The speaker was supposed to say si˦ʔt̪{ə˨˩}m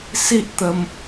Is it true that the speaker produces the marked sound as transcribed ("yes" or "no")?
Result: no